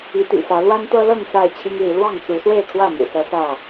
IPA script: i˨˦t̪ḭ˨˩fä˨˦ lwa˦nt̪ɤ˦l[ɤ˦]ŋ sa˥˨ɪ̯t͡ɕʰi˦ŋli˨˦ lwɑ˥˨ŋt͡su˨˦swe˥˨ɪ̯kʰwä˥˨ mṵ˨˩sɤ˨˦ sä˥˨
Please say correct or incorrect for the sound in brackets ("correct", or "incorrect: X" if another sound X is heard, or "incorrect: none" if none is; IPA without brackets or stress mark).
incorrect: ɤ˥˨